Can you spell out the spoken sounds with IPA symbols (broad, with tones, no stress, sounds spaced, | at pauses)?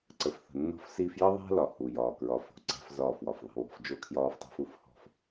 ǀ ə˨ f θ ə̤˨ nː ɔ̤˦ f s iː˦ f j ə˦ ðˤ æ̤˦ l ɒ˨ h u˨ j ɒː˨ k ɹ ɒ˨˦ f o̤˨ ǀ æ̤˦ f z ɒː˦˨ f w ɒ˨ f ðˤ i̤˦ w ɔ̤˦ f d͡ʒ o˦ kʰ j ɒː˦ f tˤ æ̤˦ f u˦ f h ɔ̤˦ f